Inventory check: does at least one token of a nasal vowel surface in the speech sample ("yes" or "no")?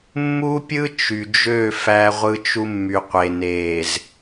no